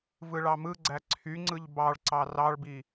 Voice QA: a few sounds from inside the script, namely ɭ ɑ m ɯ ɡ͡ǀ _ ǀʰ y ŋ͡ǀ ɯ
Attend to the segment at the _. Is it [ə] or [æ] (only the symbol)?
æ